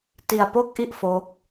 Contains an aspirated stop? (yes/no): no